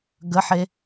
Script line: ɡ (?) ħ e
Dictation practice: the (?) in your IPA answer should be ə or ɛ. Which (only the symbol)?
ə